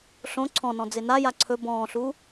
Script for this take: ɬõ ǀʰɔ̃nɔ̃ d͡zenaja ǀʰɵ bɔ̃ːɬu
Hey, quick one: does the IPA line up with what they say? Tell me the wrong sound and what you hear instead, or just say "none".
none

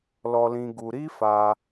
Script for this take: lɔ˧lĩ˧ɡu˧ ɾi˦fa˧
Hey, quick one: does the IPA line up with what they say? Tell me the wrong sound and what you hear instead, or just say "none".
none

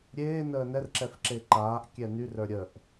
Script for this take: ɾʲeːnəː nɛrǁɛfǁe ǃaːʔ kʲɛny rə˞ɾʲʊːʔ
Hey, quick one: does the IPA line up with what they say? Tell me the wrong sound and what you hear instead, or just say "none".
ʊː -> əː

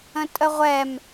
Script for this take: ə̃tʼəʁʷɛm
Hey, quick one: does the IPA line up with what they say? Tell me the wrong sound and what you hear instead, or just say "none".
none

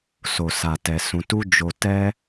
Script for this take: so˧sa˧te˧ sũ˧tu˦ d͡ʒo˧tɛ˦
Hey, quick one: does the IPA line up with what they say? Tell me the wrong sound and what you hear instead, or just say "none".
e˧ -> ɛ˧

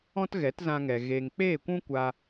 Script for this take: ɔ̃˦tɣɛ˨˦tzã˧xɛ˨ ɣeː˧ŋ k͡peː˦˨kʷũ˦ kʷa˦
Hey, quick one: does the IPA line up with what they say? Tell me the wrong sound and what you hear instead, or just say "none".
x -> ŋ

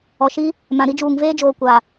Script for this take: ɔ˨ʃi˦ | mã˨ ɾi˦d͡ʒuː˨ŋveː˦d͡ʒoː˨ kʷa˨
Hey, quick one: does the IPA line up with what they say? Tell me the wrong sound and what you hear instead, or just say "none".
none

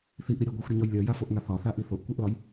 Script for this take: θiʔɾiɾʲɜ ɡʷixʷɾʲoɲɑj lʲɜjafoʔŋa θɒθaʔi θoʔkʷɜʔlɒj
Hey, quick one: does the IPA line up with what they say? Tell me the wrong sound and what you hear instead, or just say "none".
ɑ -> ɒ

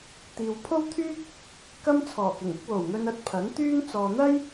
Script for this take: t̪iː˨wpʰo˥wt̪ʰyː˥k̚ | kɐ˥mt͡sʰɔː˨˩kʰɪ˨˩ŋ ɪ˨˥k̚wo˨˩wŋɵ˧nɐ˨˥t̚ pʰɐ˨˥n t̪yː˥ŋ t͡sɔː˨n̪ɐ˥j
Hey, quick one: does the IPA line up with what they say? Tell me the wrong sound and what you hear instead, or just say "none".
kʰ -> k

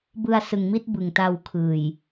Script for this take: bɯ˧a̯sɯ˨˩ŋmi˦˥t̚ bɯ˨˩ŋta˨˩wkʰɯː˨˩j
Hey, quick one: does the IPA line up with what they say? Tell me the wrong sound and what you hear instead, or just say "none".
a˨˩ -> a˧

